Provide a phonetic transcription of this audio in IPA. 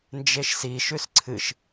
n d͡ʒ e ʃ s i ʃ ʉ s ǀʰ ɨ ʃ

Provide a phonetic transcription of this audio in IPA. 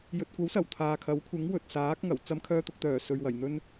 j ɵ˨ t̚ kʷ ɐ˨˥ w s ɐ˨˩ w t̪ʰ aː˨ kʰ ɐ˨˥ w kʷʰ ɪ˨˥ ŋ w ɵ˨ t̚ s aː˨˥ k̚ ŋ ɐ˨˩ w t͡s ɐ˧ m kʰ œː˧ t̪ ʊ˨ k̚ t̪ œː˨˩ s ɵ˨ ɥ w ɐ˨˩ j n̪ ɵ˧ n

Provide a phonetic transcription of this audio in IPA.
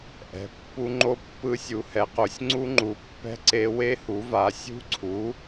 ʔ ɛ̤˨˥ pː u˦˥ ŋ͡ǃ o˦˥ pː ɯ˦˥ sʲ u˨˥ h ɛ˨˥ q o˨˥ sʲ ŋ͡ǀ u˦˥ ŋ͡ǃ u˨˥ pː ɛ̤˦˥ ǀ e˦˥ w e˦˥ h u˨˥ v a˨˥ sʲ ṳ˦˥ ǀʰ u˨˥

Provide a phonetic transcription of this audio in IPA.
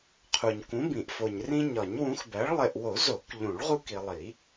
qʰ u˨ ɲ k ũ˨˥ b ĩ˨˩˦ ʔ f o˨ ɲ r ĩ˦ ɲ ɒ˨˩˦ ɲ w ũ˨˥ x b æ˨˥ ɭ lˠ e˨ ʔ w o˨˩˦ z o˨˩˦ k ʎ ũ˨˩˦ ɭ ʁ u˦ k i˨ lˠ i˨˩˦

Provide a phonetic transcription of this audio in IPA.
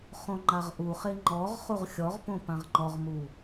χ õ ŋ͡ǃ a ʁ ʔ u χ e ŋ͡ǃ ɔ ʁ χ u ʁ xʲ ɔ ʁ p õ p ã ʁ ŋ͡ǃ ɔ ʁ m u

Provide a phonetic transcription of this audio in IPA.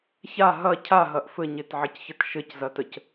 ç a ɦ ɐ cʰ a ɦ ɐ ʔ f ɘ ɲ e t ʕ ə c ç ə t ʃ ɘ c z ɐ t ə c

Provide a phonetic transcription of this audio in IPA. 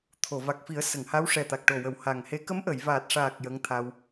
t̪ʰ o˨˩˨ v a˨˩ k̚ f i˨˩˦ ə̯ s ə˨˩˨ ŋ h a˧˥ w ʂ ɛ˨˩ t̪ a˨˩ k̚ ʈ o˨˩ w ə˨˩˦ w h a˨˩ ŋ h e˧˥ k ə˧˥ m ʔ ə˨˩˨ j v aː˨˩ t̚ ʂ aː˨˩ k̚ j ə˧˥ ŋ t̪ʰ a˧ w

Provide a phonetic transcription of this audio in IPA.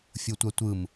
fʲ o tʷ a tʷ ɯ m

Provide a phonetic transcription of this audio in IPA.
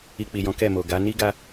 i˧ k͡p i˨ j ɔ̃˨˦ k ɛ˦˨ m o˨ ɡ a˨˦ n i˦ ɡ a˦

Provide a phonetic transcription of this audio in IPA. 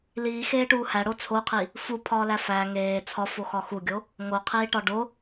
l iː x eː ʈ uː h æ ɽ o t͡sʰ o qʰ i | f u pʰ ɒː l æ f æ ŋ eː t͡sʰ ɒ f o x ɒ x u ɡʲ o | ŋ o qʰ iː ʈ ɒ ɖ o

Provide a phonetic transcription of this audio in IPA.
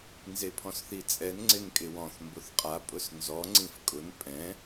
n z e pʰ ɔ̃ s θ i t͡sʼ ɛ n ŋ͡ǀ ɪ n kʼ ɪ w ɔ̃ θ m b ʊ θ qʼ a pʼ ʊ s n z ɔ ŋ͡ǀ ĩ f kʼ ʊ n pʼ ɛ̃

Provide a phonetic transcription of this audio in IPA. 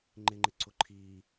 ŋ͡ǃ ɪ ŋ͡ǃ ɪ ǀ ʊ ǃʰ i

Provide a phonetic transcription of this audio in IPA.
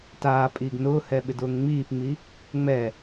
t aː pʼ iː ɡ n ʊː h ɛ ɓ ɪ d ʊː ŋ ŋ͡m iː p ŋ͡m i | ŋ͡m ɛ

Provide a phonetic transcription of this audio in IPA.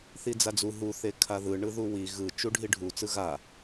θ i d͡z a d͡z u ɦ u θ e kʰ a ð ɯ ɳ ɯ ð u w i ɣ ɯ t͡ʃ u ɖʱ i ɖʱ u t͡s ɯ ɣ a

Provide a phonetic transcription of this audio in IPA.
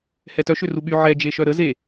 h ɛ t œ ʃ ø r u ɓ y ʕ ɛ d͡ʒ e ʃ œ ɾ ə z e

